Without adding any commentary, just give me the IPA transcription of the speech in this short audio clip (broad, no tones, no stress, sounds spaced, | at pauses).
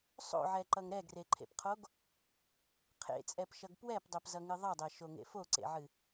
sˤ o̰ ʕ ɛ ǃ ʌ ŋ ɾ ɛ ɡ r e ǃʰ ḛ p qʰ o ɡ | qʰ ḛ t͡sʼ ɛ p ʃ ʌ ɡ p w ɛ p dˤ ɛ p z ʌ ŋ ɨ ðˤ ʌ dˤ ɛ ʃ o ŋ ḛ f o ǀ ḛ ʕ ɨ